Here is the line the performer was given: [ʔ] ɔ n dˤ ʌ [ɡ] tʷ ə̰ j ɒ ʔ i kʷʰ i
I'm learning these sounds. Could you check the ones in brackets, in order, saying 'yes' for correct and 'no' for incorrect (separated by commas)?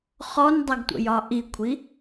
no, yes